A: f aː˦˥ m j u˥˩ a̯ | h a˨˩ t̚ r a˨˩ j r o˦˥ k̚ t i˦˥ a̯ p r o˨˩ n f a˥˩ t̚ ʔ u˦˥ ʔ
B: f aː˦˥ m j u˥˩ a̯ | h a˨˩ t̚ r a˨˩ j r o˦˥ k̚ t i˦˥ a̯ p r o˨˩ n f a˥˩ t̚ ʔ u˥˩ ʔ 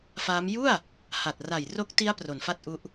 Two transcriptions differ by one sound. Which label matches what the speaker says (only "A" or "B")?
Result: A